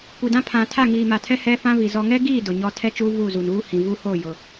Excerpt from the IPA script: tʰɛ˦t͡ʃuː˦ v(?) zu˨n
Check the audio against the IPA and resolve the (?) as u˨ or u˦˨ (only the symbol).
u˦˨